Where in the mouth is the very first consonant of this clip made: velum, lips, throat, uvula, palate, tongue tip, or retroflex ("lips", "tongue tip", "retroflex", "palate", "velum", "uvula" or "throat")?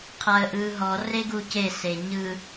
uvula